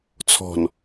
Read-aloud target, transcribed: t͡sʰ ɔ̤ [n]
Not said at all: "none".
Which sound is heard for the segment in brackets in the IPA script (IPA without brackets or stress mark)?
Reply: n